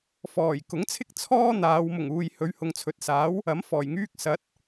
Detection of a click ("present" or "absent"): absent